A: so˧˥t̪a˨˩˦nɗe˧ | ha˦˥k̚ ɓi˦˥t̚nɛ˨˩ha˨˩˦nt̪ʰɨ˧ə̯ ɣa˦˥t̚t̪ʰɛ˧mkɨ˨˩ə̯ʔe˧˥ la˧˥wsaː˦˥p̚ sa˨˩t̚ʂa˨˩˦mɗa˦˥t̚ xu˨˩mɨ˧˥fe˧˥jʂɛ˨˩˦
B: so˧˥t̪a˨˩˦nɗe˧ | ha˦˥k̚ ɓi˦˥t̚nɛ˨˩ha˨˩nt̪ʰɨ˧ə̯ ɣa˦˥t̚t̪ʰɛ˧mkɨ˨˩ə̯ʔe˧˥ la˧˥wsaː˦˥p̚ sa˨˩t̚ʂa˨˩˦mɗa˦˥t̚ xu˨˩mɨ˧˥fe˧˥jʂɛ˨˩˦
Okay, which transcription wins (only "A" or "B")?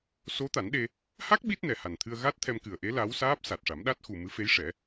B